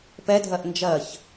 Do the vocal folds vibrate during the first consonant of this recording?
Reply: no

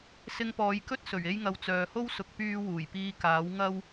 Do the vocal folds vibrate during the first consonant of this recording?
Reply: no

